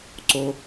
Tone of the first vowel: high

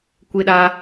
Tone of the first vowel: high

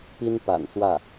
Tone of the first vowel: high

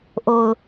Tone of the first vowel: low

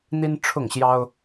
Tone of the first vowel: high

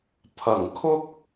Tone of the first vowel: low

